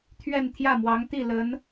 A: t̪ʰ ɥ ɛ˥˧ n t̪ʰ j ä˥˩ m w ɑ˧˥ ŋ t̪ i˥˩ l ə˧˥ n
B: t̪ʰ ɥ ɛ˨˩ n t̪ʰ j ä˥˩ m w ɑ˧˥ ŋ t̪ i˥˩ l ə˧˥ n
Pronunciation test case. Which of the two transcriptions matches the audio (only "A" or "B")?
A